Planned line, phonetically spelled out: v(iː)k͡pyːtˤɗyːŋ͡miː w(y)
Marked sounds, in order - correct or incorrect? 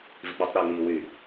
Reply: incorrect: i, correct

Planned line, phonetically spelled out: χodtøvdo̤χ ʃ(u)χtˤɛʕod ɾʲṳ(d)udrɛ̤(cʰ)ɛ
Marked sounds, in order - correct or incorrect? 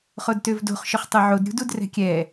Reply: incorrect: ʊ, correct, incorrect: kʲ

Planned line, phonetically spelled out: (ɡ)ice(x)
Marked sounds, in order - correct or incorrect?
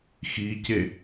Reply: incorrect: x, incorrect: none

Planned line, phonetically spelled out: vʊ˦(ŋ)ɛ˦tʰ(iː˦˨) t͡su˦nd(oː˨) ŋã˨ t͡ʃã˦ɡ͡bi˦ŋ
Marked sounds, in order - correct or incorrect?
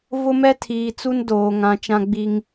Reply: incorrect: m, incorrect: iː˨, correct

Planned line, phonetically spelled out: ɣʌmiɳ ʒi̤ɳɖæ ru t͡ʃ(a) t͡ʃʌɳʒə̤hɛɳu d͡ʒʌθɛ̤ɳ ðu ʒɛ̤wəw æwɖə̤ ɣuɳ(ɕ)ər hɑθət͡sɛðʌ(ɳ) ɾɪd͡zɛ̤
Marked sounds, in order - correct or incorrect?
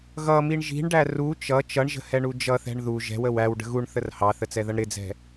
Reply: incorrect: ʌ, incorrect: θ, correct

